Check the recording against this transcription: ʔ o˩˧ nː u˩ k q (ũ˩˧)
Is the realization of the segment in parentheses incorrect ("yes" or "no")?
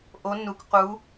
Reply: yes